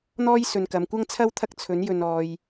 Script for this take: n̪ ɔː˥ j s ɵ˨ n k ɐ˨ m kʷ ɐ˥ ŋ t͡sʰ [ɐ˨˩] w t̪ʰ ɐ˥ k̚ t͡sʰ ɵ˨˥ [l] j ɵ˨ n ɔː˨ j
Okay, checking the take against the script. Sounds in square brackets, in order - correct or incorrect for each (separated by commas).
incorrect, incorrect